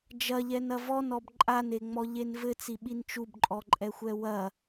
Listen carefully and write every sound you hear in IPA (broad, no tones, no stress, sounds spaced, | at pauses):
d͡ʒ ɐ ʎ ɛ n ɐ v ɔ n ɔ b ǃʼ a n e ŋ͡m ɔ ʎ e n v ɘ t͡s i ɓ i n t͡ʃ u b ǃʼ ɔ ǃʼ ɛ xʷ ɛ w ɐ